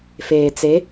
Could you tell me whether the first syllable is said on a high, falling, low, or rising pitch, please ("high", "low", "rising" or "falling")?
low